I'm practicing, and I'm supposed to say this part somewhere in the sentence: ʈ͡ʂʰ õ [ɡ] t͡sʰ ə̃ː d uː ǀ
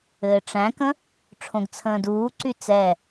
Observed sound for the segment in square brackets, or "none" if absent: ɡ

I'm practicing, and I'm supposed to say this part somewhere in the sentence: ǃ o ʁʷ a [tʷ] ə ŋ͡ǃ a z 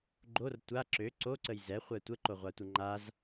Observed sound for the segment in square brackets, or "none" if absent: tʷ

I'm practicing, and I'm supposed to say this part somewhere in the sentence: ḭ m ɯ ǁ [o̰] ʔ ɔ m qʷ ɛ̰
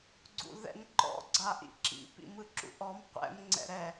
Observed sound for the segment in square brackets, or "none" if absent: ṵ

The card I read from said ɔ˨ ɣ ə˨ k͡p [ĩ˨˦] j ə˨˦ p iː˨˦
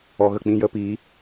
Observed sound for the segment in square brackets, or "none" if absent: ĩ˧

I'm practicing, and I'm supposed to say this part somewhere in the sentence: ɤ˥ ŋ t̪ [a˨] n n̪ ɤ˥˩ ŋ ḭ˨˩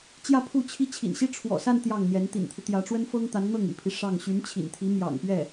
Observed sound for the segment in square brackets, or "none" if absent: a˧˥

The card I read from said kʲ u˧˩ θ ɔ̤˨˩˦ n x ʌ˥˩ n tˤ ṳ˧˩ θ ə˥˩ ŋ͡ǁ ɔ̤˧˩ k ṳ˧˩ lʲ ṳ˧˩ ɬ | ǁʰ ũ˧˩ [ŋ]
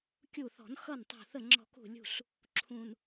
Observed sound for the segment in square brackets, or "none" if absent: n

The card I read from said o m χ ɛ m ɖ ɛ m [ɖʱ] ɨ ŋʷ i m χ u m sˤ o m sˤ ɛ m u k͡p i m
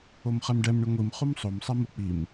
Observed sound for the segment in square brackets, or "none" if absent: ɳ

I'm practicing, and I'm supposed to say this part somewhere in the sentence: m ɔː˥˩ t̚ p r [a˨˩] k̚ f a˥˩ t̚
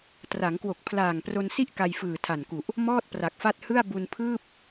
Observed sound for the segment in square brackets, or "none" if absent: a˨˩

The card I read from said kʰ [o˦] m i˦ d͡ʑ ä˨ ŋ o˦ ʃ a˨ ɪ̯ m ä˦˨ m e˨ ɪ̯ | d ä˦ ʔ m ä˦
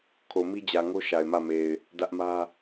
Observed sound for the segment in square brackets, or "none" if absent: o˨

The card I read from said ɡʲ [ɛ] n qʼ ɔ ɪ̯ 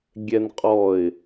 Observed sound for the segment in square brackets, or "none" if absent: ɛ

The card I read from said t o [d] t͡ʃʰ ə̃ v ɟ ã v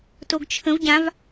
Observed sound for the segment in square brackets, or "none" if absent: ɡ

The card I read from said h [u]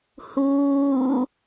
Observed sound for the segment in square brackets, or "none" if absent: uː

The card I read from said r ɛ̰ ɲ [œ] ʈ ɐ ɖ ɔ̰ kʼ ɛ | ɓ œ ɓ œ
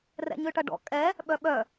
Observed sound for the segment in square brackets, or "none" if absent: ø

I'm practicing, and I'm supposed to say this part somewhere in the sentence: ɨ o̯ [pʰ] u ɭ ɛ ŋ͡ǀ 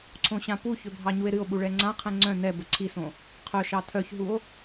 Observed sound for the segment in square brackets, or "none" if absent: ɓ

